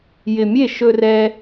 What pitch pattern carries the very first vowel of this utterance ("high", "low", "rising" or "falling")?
low